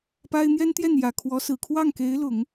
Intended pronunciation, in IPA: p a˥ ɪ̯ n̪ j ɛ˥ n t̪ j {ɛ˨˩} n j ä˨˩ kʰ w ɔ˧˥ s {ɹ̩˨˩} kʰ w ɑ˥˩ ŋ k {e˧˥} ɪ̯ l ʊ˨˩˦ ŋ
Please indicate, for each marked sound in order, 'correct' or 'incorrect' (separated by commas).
incorrect, correct, correct